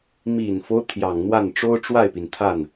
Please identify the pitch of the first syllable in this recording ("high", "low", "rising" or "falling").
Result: low